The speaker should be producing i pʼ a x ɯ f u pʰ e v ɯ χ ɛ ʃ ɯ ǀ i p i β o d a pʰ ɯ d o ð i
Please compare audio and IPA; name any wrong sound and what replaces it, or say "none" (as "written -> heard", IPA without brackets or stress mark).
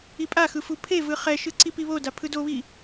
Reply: ð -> β